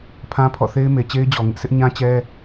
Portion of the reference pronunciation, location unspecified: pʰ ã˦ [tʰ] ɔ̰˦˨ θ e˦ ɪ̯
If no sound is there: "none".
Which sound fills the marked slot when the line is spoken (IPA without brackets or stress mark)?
pʰ